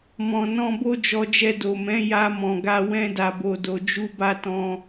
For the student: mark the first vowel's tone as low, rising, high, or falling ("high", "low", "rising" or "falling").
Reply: low